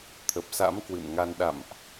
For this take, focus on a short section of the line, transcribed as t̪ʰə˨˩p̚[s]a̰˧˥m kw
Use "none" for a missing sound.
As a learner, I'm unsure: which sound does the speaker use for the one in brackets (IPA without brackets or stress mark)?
s